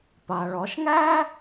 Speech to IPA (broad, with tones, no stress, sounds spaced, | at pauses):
p a˩ ɭ ɒ˩˧ ʃ ŋ æ˥